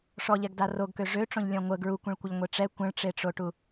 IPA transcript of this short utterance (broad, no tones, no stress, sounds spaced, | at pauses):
ʂ ɔ ʎ ɛ ɡ d a r o ɡ k ø ʐ ø ʈ͡ʂ õ ʎ lʲ ɔ̃ ŋʷ ə ɡ ɹ u kʷ ẽ ɭ kʷ ə ʎ ŋʷ e ʈ͡ʂ ɛ kʷ ə̃ ɭ ʈ͡ʂ e ʈ͡ʂ o ʈ u